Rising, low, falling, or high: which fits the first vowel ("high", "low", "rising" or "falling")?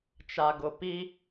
low